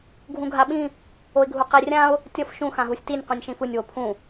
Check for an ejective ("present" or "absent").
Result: absent